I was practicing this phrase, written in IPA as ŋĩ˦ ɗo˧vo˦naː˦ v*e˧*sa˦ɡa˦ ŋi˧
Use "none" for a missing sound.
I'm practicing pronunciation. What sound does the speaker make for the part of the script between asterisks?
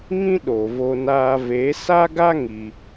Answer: e˨˦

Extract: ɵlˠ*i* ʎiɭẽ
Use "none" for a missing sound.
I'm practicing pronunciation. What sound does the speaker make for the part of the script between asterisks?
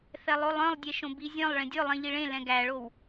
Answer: ĩ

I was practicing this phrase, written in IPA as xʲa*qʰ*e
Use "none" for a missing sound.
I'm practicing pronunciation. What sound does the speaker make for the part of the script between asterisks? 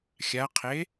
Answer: qʰ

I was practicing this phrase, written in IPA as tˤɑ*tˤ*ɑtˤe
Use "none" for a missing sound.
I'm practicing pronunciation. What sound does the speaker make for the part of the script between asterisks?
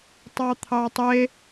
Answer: t̪ʰ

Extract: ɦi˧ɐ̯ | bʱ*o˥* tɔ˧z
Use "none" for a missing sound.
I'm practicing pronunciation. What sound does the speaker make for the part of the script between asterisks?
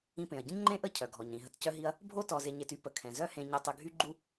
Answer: o˥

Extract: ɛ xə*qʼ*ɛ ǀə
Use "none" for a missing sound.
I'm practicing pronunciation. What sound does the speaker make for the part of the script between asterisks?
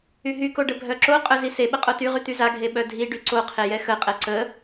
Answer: qʼ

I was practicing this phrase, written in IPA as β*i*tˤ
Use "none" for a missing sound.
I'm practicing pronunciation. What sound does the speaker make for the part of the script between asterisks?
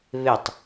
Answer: ɪ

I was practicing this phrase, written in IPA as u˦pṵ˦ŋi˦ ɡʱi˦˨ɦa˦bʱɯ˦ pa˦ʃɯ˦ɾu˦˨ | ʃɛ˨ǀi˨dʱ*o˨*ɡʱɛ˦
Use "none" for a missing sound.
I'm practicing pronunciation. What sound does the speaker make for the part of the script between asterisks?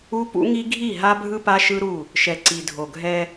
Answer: o˨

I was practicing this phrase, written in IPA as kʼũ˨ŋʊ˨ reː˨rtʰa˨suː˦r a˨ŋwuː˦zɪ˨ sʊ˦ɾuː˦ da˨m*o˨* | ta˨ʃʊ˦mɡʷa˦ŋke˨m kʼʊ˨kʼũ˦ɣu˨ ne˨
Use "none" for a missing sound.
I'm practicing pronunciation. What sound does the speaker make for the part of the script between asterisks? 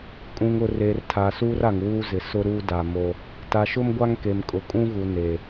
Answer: o˦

